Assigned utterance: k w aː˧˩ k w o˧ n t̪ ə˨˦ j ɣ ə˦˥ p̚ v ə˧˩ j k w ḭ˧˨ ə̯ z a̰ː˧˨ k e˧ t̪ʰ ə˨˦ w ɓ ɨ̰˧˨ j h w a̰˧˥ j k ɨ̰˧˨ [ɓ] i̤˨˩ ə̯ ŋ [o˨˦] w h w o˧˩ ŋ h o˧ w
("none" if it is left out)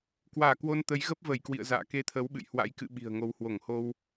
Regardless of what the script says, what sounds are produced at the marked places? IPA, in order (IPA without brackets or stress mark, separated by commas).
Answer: ɓ, o˨˦